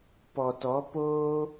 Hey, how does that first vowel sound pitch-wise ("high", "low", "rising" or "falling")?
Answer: low